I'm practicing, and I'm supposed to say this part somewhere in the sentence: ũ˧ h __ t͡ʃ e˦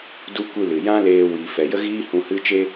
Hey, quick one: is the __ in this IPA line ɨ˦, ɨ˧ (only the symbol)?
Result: ɨ˦